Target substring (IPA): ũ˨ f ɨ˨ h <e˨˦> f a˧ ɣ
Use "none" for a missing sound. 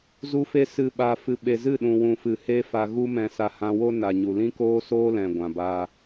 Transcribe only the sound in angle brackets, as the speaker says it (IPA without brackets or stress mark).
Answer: e˦